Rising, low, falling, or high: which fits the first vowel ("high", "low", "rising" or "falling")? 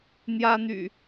high